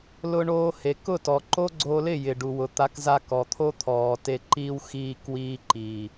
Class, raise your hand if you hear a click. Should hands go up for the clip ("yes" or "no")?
yes